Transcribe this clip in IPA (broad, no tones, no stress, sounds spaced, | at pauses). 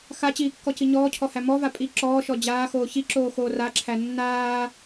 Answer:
x a t͡ɕ iː kː ɔ c i ɲ ɔː cʰ ɔ h æ m ɔ v a pʼ i ǁ ɔː ʃ ɔ d͡ʑ aː x oː ç i ǁ oː x oː r a ǁʰ æ nː aː